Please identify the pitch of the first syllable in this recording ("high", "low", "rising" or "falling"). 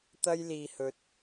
high